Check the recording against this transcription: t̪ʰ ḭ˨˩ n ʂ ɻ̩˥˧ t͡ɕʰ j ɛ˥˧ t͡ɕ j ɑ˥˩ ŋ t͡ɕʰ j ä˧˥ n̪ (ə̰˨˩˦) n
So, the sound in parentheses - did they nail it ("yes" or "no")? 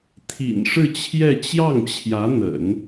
yes